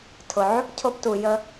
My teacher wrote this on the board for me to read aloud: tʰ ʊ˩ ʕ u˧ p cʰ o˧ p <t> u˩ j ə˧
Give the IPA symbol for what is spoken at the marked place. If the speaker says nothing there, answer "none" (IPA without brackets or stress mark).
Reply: t